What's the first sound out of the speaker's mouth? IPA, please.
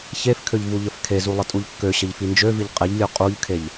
ç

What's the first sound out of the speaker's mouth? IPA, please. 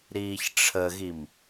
ɾ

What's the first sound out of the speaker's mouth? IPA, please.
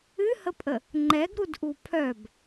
ɨ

